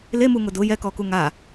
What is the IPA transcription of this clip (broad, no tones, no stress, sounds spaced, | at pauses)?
l e m u ŋ ʊ d ʊ j ɛ k ɔ k u ŋ a